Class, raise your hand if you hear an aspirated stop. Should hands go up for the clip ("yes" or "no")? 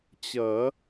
no